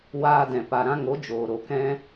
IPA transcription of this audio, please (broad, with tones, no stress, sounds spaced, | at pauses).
w aː˧ d ɛ̃˨ p a˨ ɾ ã˧ ŋ o˨˦ d͡ʒ oː˨ ɾ o˨ k ɛ̃˦